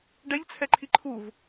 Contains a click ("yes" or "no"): yes